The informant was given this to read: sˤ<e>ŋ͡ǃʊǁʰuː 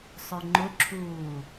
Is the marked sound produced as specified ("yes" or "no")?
no